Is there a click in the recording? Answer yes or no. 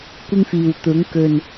no